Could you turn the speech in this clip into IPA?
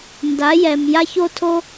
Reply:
n d a˩˥ j ɛ˩ m j a˥ ç o˥ tʰ o˥

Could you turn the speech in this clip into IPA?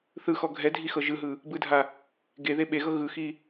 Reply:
θ ɯ x ɔ ɡʱ ɛ dʱ i x ɤ ʒ ɯ ɦ ɯ | b ɯ dʱ a | ɡ e ð e ɓ e ɣ ɤ ɣ ɯ x i

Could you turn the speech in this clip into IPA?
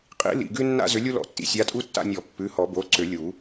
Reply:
qʼ ḭ˨˩˦ l ḭ˩˧˩ ɡ ʉ˦ nː a̰˦ z ʏ˨˦ lʲ u˦ l ɔ̰˨˩˦ tː ḭ˩˧˩ sʲ a˨˦ tʼ u˦ tː a̰˦˨ nʲ ɔ˨˩˦ pː ʉ˩˧˩ h ɔ˨˩˦ b o˩˧˩ ǀ ʏ˨˩˦ lʲ u˨˩˦

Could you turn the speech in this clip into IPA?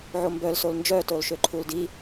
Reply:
ʕ o m b œ l s o l n d͡ʒ œ t o l ʃ ø ǃʰ u l d i

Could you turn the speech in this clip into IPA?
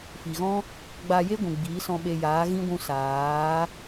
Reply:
f i˨ ɣ ɔ̃˦ | ɡ͡b aː˧ j e˦ ɡʷ ũ˨ ɡ͡b iː˨˦ s ɔ̃˧ ɓ e˧ j aː˨˦ ɣ ĩ˦ ɡʷ ũ˧ s aː˨˦

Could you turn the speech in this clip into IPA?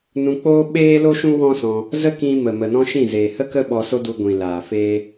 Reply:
n ũ˧ k͡p oː˦ ɓ eː˦ l o˦ ʃ ũ˦ w ɔ̃˦ s ɔ̃˧ | z ə˦ k ĩ˧ m ə˨ m ə˨ n ɔ̃˦ ʃ ĩ˦˨ z eː˨ h ə˦ k ə˦ ɓ ɔ˧ s o˦ d u˧ ɡʷ ĩ˨ l aː˨ f eː˦

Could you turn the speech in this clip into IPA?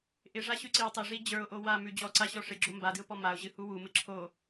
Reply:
ʔ ɪ ʐ a ɕ ʉ ǀ i w tˤ ɪ ʐ i d͡ʑ ə˞ ʊ̯ ʔ o w a m ʉ d͡ʑ ɔ ǀ a ɕ ɔ ʂ ɪ ɡ͡ǁ o m b a d ɨ ʊ̯ p ɔ m a ʊ̯ ʑ ɨ h u w u m ɨ ǁʰ o

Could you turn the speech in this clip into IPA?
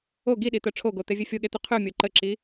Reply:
o ɡ i ɗ i t̪ œ ʈ͡ʂʰ o ɡ o t̪ e vʲ e fʲ o ɠ e t̪ y qʰ y mʲ o ǃ ə ǁ i

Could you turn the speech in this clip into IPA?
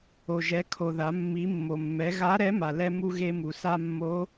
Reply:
o˩ ʒ ɛ˩˧ kʰ o˩ ð a˩˧ mː i˩˧ mː o˩ mː ɛ˩˧ ɣ a˧˥ ɾ ɛ˧˥ m a˩ l ɛ˧ m u˧ ɣ e˧ m u˩ s a˧ mː o˧˥

